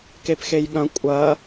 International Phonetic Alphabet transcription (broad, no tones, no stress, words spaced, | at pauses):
kepxejɠɐ̃ kʷʼɐ